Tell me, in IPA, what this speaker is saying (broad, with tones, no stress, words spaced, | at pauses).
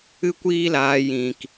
ɨ˦kʷiː˦laː˧ jĩ˨k